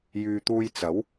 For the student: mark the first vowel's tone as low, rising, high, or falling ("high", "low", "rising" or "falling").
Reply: low